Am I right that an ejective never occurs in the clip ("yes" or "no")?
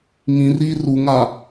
yes